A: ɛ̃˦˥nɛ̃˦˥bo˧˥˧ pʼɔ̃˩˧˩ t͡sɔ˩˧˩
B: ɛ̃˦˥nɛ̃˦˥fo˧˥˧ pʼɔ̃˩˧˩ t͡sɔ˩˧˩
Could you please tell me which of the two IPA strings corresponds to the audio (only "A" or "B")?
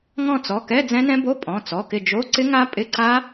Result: A